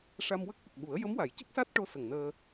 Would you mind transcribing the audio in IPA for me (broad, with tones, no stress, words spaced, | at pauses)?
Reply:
ʂa˧mwə˦˥k̚ʔə˨˩k̚ɓu˨˩˦ə̯ jə˧˥mwa˨˩˦jcə˦˥k̚ sa˦˥t̚ʈo˧˥ sə˨˩ŋnəː˧